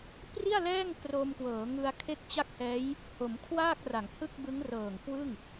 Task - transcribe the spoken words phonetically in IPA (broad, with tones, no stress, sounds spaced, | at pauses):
p r i˥˩ a̯ l ɛː˥˩ ŋ k r o˧ m k w ɤː˩˦ ŋ ɯ˧ a̯ kʰ e˦˥ k̚ t͡ɕ a˦˥ k̚ h ɛː˦˥ j | h o˩˦ m kʰ w aː˥˩ k̚ r a˩˦ ŋ h ɯ˥˩ k̚ b ɯ˦˥ ŋ r ɤː˨˩ ŋ k w ɯ˥˩ ŋ